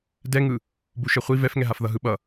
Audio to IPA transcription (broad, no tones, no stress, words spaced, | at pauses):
dɛŋɯ | buʃɛχʷi vɛfŋɛɦaf ðʌɦɯɓʌ